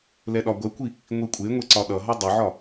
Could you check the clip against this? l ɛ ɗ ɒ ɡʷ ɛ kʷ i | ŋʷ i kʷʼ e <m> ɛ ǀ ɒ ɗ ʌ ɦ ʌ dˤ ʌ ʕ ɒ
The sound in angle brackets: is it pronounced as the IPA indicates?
no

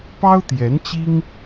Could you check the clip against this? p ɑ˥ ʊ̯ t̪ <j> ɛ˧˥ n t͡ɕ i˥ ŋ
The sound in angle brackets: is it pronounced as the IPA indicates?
yes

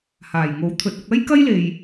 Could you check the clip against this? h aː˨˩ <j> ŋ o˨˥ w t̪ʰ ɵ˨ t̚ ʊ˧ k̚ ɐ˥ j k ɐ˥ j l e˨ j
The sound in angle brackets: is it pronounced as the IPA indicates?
yes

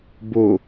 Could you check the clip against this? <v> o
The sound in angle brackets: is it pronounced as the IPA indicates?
no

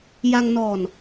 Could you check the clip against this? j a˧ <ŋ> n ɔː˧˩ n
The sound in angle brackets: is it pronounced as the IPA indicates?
yes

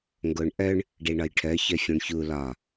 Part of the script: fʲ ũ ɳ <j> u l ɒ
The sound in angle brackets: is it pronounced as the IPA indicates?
no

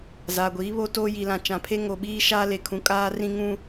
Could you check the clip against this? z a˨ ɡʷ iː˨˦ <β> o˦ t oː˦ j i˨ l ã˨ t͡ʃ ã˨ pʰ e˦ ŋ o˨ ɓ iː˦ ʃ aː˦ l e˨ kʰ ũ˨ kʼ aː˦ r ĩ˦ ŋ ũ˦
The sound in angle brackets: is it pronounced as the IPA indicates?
yes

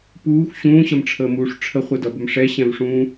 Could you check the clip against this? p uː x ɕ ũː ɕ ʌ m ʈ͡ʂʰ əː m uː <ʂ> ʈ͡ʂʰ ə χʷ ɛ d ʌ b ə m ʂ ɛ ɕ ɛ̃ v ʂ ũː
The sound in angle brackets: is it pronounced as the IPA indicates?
yes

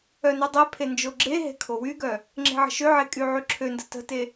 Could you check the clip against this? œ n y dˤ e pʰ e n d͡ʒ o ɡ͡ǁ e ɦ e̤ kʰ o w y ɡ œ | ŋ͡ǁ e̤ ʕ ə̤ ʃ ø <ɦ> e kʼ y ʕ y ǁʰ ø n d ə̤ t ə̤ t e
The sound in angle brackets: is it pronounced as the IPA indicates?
no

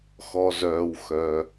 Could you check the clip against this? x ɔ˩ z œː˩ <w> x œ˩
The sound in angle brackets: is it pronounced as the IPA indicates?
yes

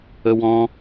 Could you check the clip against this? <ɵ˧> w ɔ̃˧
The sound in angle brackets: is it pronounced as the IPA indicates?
no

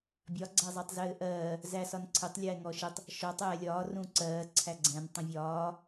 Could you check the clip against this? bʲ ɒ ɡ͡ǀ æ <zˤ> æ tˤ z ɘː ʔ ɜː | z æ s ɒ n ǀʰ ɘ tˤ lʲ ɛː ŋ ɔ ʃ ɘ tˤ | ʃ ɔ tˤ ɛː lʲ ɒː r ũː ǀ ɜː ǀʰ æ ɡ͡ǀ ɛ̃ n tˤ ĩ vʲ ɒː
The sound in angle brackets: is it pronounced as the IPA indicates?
yes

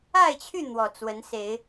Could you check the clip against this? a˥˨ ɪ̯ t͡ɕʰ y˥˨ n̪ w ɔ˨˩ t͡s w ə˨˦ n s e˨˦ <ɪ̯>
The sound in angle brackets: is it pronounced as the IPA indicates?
yes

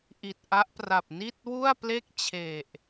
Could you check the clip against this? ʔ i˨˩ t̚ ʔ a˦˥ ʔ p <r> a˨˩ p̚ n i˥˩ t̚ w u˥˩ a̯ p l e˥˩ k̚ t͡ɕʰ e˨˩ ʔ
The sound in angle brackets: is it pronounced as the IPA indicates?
yes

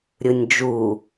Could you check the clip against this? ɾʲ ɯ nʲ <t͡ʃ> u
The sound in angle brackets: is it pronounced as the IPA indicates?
no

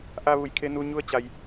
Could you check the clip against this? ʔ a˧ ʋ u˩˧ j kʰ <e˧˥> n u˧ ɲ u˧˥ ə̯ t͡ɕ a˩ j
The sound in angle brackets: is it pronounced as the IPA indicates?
no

